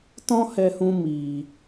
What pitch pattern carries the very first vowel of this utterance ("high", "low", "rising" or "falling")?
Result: high